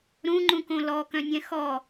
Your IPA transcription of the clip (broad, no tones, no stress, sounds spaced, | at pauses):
ɾ ũ ŋ͡ǃ ũ k õ l ɔ k œ̃ nʲ ɛ̃ x ɔ